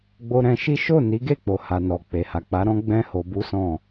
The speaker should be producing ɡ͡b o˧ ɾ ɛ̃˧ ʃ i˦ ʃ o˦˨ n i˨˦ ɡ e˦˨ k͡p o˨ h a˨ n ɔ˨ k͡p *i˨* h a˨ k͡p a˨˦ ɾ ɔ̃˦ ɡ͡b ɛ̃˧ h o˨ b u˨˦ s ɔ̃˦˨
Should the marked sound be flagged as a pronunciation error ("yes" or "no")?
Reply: yes